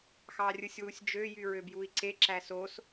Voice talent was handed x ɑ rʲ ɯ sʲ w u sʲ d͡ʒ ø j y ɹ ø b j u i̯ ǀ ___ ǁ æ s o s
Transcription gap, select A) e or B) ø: A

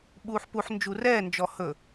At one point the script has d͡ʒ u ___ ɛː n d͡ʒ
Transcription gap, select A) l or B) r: B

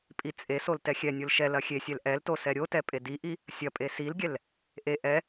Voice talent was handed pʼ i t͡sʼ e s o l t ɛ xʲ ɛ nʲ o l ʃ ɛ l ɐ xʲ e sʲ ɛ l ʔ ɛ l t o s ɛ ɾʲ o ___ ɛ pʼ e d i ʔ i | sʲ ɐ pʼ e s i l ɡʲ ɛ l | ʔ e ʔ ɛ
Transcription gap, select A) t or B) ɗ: A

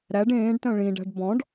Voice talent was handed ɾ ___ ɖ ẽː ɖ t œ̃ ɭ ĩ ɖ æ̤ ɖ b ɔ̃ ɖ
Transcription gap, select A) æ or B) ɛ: A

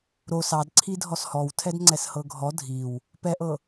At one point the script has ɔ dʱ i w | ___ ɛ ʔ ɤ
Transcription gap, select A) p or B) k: A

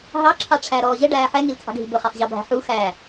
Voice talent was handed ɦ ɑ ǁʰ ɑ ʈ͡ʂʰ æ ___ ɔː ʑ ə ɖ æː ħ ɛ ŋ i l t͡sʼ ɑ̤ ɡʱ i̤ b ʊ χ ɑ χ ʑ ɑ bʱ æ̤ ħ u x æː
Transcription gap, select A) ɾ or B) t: A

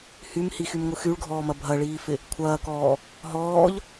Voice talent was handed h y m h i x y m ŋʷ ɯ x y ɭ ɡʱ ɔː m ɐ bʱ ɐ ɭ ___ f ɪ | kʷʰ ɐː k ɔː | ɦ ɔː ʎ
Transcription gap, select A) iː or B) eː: A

